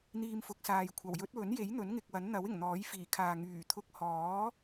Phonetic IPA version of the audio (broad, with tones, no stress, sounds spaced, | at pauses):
n̪ iː˧ m f ʊ˨˥ k̚ s aː˨ j kʷʰ ɐ˨˩ w j ɵ˨˥ t̚ w ɵ˨˥ n j e˨˥ j n̪ ɵ˨˥ n ŋ ɪ˨ k̚ w ɐ˨˥ n n̪ ɐ˨˥ w ɪ˨˩ ŋ n̪ ɔː˨˥ j f iː˨˩ kʰ aː˨ ŋ yː˨˩ t̪ʰ ʊ˧ k̚ h ɔː˨˥